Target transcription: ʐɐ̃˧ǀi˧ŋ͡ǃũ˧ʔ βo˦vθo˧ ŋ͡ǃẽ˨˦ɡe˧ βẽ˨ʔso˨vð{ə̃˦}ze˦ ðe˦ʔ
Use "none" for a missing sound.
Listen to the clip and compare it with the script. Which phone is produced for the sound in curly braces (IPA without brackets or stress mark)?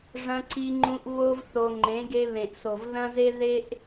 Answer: ɐ̃˦